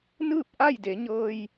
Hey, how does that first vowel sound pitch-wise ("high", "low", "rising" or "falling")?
falling